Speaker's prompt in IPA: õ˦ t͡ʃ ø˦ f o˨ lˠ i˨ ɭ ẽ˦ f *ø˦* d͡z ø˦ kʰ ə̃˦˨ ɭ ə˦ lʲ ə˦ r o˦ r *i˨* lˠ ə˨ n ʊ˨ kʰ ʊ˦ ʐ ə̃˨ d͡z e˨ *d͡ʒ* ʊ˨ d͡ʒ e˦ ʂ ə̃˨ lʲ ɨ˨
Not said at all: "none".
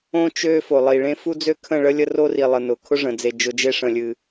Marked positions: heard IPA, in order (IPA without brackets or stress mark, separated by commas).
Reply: u˦, i˨, d͡ʒ